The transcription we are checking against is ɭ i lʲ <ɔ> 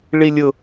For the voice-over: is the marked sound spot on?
no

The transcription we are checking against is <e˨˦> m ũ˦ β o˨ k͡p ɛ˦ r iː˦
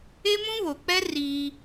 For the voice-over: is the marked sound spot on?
no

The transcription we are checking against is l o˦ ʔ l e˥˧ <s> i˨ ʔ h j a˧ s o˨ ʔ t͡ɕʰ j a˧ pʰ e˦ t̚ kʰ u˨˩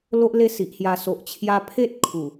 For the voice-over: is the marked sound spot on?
yes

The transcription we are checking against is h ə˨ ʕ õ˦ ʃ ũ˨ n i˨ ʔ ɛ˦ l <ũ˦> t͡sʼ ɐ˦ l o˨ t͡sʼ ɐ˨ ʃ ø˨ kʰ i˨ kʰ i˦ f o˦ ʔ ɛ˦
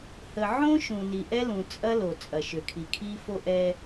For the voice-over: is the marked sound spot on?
no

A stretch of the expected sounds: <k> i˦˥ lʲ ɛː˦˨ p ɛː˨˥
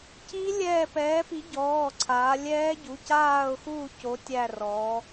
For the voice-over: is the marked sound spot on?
no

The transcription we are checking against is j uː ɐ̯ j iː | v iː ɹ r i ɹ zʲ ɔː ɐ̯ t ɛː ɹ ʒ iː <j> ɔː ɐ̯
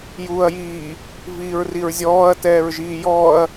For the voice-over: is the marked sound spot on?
yes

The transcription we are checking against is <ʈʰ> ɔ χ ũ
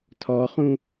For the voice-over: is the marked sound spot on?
no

